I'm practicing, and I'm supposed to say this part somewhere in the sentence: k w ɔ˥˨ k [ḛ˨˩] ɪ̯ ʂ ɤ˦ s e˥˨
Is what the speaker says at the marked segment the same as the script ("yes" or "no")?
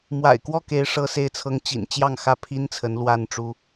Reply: no